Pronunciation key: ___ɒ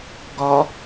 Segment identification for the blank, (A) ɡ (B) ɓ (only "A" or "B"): A